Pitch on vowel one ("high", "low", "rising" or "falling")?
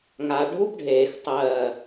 low